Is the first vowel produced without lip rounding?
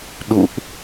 no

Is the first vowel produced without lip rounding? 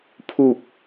no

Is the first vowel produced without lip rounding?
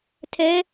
yes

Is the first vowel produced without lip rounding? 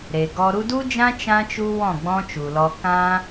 yes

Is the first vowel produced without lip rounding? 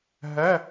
yes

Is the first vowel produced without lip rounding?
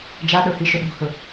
yes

